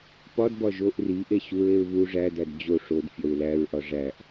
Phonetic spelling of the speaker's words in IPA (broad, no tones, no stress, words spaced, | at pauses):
pɒdbɒ ʒoʔ riʔe ɕuɹeɹ βu ʐædæd d͡ʑo ʂod fʲɒɹlæɹʔɒ ʐæʔ